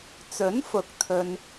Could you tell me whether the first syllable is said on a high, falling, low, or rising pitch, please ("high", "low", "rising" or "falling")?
rising